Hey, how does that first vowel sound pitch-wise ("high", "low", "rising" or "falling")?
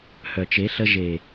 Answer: low